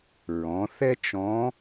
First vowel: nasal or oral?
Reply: nasal